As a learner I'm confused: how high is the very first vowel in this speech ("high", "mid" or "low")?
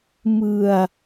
high